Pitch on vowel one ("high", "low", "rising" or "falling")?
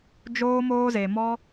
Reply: high